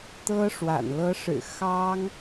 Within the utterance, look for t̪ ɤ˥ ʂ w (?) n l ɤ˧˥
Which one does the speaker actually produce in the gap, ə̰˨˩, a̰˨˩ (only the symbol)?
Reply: a̰˨˩